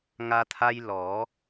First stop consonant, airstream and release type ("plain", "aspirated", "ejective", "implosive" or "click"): aspirated